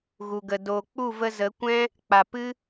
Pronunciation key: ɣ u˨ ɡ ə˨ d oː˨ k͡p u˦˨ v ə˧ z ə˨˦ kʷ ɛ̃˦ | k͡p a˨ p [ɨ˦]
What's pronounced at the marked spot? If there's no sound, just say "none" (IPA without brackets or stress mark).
ɨ˦